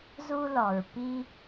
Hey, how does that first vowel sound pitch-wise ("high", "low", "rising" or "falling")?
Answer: high